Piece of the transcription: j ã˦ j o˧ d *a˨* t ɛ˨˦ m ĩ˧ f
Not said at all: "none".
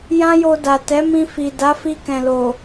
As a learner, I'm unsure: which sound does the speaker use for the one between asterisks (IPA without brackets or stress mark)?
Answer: a˨